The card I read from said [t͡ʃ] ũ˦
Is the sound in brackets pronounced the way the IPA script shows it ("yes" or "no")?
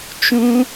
yes